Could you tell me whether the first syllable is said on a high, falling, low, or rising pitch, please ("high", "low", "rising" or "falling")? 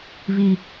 low